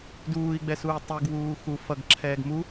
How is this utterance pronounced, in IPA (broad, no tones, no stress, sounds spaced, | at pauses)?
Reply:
d uː i̯ ɡ͡b ɛ s uː tˤ u ɡ w uː x u f ʌ ɡ ǁʰ ɛː ɡ m u